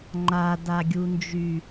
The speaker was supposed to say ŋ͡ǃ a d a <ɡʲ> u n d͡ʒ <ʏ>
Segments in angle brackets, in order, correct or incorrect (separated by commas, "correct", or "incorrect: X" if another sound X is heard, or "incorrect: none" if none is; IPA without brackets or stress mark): correct, incorrect: y